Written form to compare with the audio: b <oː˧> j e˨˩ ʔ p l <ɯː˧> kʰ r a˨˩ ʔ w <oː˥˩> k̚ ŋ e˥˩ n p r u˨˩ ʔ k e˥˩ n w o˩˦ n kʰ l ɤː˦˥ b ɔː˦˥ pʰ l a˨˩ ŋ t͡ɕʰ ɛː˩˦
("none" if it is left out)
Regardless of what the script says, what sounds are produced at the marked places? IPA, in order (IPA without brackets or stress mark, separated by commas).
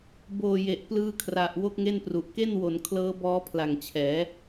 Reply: oː˨˩, ɯː˧, o˥˩